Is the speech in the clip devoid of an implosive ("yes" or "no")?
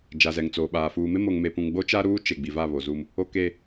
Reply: no